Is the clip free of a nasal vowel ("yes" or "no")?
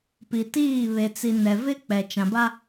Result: no